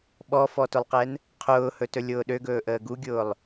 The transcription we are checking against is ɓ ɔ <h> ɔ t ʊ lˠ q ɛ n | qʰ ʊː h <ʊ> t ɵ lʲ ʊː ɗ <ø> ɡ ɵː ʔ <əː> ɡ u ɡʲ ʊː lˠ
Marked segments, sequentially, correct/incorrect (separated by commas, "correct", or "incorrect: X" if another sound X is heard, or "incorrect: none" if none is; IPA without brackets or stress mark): incorrect: f, incorrect: ɵ, correct, correct